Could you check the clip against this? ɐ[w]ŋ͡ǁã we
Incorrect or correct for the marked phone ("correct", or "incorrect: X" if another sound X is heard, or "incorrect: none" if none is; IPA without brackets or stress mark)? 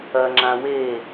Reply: incorrect: none